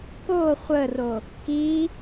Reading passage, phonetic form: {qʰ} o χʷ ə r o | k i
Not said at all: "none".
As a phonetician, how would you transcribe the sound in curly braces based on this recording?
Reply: k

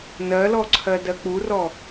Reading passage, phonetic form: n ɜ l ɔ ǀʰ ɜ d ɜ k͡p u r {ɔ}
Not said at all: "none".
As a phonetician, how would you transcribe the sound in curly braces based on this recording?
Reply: ɔ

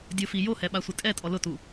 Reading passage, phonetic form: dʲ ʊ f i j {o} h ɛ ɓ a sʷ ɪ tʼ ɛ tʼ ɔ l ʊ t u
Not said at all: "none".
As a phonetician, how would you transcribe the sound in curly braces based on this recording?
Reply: o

